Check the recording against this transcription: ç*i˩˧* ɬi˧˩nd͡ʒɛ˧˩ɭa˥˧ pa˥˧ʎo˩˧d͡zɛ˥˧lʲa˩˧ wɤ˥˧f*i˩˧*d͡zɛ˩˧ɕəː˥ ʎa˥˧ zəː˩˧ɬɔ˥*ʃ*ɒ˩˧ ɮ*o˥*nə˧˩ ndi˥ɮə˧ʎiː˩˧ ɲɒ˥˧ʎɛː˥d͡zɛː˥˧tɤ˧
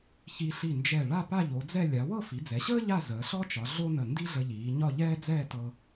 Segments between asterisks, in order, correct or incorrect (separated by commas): incorrect, correct, incorrect, correct